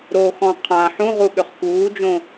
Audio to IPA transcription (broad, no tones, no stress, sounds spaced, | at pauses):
ɾ o x ɔ̃ qʰ ã ħ ũ ʁ u ɠ ʏ χ k uː d͡ʒ õ